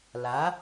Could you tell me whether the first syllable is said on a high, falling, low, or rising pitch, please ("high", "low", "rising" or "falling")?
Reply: rising